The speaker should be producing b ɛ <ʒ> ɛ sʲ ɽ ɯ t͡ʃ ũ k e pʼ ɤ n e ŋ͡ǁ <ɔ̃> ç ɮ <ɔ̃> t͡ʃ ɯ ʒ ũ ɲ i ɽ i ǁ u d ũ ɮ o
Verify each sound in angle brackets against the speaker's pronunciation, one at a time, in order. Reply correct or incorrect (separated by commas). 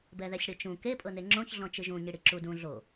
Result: incorrect, incorrect, correct